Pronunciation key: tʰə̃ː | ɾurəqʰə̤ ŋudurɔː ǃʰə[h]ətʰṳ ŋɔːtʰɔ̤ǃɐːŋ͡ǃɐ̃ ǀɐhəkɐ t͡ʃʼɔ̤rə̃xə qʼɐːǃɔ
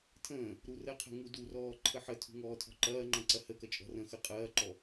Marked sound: incorrect: ħ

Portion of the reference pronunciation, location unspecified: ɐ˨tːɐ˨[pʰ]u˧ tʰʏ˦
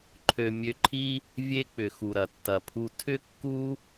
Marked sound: correct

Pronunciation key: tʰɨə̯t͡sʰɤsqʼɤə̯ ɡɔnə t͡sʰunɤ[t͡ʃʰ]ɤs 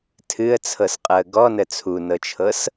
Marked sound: correct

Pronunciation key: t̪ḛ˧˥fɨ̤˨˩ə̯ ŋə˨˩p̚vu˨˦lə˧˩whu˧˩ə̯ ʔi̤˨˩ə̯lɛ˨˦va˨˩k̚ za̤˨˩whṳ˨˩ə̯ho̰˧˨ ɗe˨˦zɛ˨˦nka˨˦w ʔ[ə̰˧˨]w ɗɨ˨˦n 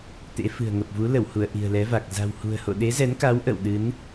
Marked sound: correct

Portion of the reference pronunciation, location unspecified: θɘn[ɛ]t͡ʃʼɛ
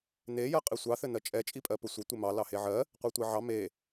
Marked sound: incorrect: ɜ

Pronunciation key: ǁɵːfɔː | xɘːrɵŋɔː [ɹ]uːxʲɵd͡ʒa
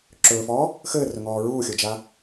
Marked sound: correct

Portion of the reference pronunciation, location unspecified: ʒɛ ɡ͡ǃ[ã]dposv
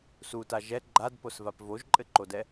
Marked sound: incorrect: a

